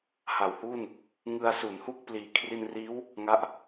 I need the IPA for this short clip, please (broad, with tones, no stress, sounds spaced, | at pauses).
h a˨˩ w h uː˥˩ n | ŋ ɯ˧ a̯ s u˩˦ n h u˥˩ k̚ p l iː˨˩ kʰ r i˧ n r iː˦˥ w | ŋ a˥˩ ʔ